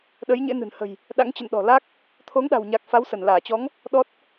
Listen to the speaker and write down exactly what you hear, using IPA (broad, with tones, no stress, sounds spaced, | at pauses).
ɗ ə˨˦ j ɲ ḛ˧˥ n ɨ̤˨˩ n h ə̤˨˩ j | ɗ a̰˧˥ ŋ t͡ɕ ə̰˧˨ n ɗ ɔ̤˨˩ l a˦˥ k̚ | t̪ʰ o˨˦ ŋ ɗ a̤˨˩ w ɲ a˨˩ k̚ f a˨˦ w s ə˧˩ n l aː˧˩ t͡ɕ ɔ˨˦ ŋ | ɗ ɔ˦˥ t̚